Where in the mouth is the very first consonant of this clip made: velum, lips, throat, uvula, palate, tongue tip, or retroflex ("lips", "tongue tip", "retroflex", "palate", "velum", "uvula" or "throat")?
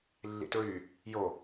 tongue tip